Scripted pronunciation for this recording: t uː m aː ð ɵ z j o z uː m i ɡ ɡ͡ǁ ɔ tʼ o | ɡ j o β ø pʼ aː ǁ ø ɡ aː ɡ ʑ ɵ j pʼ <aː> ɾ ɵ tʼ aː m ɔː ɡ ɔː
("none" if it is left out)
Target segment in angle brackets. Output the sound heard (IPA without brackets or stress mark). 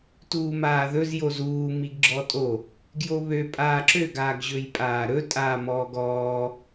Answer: aː